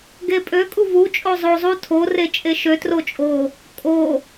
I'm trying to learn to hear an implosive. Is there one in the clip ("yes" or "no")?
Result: no